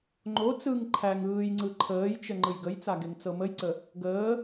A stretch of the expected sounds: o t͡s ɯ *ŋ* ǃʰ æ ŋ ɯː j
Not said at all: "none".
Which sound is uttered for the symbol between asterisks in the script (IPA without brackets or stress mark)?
ŋ